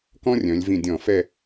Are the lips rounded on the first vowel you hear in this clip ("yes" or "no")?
yes